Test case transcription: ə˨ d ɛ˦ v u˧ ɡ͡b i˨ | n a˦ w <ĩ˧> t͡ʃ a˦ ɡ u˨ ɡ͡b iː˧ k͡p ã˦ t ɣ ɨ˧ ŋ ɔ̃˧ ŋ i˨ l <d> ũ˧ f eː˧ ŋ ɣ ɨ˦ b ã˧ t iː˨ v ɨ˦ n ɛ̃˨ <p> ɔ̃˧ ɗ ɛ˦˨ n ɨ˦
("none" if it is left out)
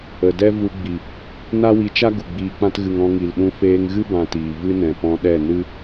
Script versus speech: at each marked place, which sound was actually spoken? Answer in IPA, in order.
i˧, ɗ, p

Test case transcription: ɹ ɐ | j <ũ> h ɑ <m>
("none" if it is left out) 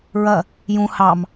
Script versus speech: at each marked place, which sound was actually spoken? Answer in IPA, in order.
ũ, m

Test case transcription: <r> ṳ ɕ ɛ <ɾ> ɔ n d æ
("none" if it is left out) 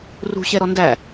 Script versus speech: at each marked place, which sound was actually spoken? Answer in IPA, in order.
r, ɾ

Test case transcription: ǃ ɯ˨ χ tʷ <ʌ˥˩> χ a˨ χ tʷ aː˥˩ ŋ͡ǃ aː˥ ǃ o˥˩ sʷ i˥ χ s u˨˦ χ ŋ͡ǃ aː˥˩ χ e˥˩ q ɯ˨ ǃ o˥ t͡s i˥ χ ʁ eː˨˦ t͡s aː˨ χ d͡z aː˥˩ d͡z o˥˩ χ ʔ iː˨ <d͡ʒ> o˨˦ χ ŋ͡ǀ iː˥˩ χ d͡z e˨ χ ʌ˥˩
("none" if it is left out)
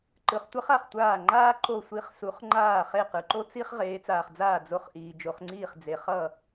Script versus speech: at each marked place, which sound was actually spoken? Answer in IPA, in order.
ʌ˥, d͡ʒ

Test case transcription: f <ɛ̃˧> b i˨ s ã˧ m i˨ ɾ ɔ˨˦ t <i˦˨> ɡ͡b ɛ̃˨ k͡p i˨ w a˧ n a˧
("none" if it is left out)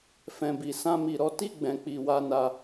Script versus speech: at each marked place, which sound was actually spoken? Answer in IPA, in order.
ɛ̃˨, i˦˨

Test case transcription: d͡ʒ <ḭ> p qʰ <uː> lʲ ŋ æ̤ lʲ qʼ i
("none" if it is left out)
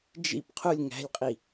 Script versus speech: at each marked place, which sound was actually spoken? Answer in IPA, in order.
ḭ, u

